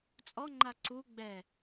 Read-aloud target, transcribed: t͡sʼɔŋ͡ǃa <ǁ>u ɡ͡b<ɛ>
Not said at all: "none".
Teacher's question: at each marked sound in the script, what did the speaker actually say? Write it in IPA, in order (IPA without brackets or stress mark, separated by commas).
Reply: ǀ, ɛ